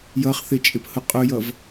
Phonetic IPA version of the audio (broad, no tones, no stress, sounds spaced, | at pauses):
j ʌ χ θ ɪ t͡ʃʼ ɪ p h ʊ qʼ ʊ j ʌ v